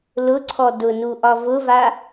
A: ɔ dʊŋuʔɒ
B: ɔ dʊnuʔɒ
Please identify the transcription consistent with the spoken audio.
B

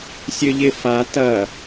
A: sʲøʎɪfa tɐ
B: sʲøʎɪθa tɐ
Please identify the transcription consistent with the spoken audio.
A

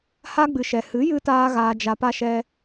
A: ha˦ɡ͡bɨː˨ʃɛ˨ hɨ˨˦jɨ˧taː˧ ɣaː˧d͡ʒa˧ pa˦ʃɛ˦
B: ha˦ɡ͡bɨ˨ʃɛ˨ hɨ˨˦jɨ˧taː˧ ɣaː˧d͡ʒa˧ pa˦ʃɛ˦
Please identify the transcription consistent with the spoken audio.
B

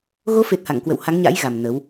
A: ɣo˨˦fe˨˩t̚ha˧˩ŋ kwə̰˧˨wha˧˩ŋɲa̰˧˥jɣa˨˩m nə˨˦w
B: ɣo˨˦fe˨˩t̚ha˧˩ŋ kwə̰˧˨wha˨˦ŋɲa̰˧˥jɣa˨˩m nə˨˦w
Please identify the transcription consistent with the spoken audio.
B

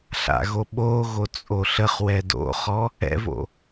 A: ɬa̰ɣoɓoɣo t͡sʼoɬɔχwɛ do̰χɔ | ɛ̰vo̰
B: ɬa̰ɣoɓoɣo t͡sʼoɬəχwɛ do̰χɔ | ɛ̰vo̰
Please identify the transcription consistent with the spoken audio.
B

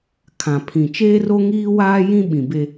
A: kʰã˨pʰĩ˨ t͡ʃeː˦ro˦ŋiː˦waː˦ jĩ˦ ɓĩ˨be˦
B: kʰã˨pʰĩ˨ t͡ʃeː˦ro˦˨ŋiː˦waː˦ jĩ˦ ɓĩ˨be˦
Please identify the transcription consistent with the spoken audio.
A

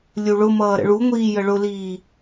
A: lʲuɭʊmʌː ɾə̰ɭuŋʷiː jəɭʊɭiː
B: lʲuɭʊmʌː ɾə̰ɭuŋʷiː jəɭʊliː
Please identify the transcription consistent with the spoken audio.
B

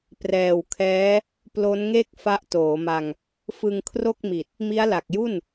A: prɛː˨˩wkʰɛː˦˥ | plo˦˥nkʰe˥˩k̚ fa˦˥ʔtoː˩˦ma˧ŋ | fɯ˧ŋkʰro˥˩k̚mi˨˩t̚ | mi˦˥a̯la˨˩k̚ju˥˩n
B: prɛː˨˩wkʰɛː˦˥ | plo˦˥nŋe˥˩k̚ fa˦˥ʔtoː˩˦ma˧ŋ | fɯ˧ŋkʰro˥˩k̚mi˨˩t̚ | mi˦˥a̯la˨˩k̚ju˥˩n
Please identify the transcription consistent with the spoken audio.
B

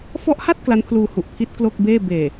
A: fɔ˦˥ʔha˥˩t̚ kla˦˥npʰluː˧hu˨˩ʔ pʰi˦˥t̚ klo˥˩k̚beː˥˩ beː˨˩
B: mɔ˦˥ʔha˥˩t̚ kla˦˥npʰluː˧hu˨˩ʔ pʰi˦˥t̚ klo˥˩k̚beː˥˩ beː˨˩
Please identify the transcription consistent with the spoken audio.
A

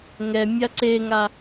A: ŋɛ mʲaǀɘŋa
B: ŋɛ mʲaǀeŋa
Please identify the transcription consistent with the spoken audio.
B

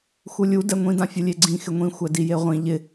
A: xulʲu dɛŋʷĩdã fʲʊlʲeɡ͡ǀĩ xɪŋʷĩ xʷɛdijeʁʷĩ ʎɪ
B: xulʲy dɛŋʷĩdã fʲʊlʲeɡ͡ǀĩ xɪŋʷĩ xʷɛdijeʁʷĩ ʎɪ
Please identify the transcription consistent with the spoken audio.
A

